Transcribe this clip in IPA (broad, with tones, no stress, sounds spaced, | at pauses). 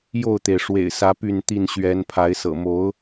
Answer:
j o˥˨ ʊ̯ t̪ e˩ ɪ̯ ʂ w ḛ˨˩ ɪ̯ s ä˨˦ p y˥˨ n t̪ i˥˨ n ɕ ɥ ɛ˨˦ n pʰ a˨˦ ɪ̯ s ɤ̰˨˩ m o˨˦ ʊ̯